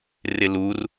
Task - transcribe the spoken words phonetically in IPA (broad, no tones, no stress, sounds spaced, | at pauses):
r ɪ l u r